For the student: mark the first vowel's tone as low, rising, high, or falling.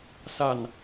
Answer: low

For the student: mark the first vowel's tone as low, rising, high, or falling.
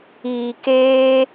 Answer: low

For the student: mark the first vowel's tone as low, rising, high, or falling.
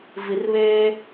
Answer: low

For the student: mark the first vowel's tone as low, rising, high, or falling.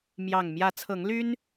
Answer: low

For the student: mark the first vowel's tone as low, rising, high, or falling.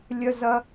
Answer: high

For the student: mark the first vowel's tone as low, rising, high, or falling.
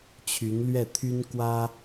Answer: rising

